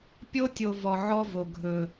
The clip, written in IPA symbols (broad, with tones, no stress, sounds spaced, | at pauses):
pʲ o˦ tʲ o˨ v ɔ˨ ʕ ɔ˦ v o˨ ɡʱ ɵ˨